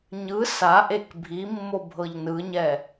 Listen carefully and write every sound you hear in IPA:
ɲ ɯ s a ʔ e k bʱ i mː o bʱ ɤ ʎ n ɯ ɲ ɛ

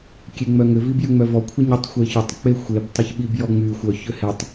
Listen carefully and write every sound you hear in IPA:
kʲ e ŋ͡m œ ŋ ʏ v i b j ʏ ŋ͡m œ v ɔ kʷʰ e ɲ ʏ tˤ xʷ e ç ʏ tˤ k͡p e xʷ e b tˤ ʏ ç ɓ i b j ɔ ŋ͡m y xʷ œ ç ʏ h e tˤ

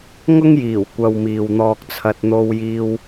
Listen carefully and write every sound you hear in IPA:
ŋ ʊ˥ ŋ j iː˨˩ w kʷ ɐ˨ w m iː˨ w n̪ ɔː˧ k̚ t͡sʰ ɐ˧ t̚ n̪ o˧ w j iː˧ w

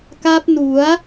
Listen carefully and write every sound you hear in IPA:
k a˦˥ p̚ n u˩˦ a̯

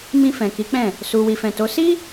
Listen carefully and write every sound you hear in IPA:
m ĩ˧ f ɛ̃˨ k i˨˦ k͡p ɛ̃˦˨ | s u˨ w i˨ f ɛ̃˨ t o˨˦ s i˦

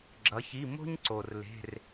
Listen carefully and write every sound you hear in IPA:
ɡ͡ǁ ʌ˩˧ ç i˩˧˩ m o̤˥ ɲ ǀ o˩ r l e̤˩˧˩ r

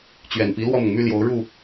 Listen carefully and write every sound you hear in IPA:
t͡ɕ ɥ ɛ˨˩ n p i˧˥ l w ɔ˥˩ m ʊ˩ ŋ m y˥˩ l j o˧˥ ʊ̯ ɻ u˥˩

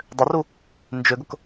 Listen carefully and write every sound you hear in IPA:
dˤ ʏ r u | n d͡ʒ ʏ ɡ ʊ k

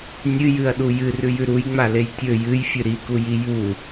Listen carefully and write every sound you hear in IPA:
nʲ ɨ j ɨ ɐ̯ ɗ u j ɨ r ʉ j ʉ ɾ u j ŋ͡m a l e j tʲ ɵ j ɨ j fʲ ɨ ɾ i k u j i j u

